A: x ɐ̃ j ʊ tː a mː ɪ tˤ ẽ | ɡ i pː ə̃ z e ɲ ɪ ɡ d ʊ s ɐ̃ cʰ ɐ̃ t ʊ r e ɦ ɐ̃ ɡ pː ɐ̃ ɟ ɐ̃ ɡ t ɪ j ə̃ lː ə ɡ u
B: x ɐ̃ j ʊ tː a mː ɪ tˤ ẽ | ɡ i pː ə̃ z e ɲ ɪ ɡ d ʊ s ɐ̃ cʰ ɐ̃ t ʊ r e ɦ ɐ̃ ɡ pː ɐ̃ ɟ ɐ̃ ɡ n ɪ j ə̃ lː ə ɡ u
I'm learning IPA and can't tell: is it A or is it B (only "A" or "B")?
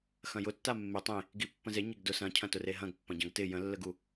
A